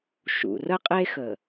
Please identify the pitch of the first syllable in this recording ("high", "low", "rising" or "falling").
low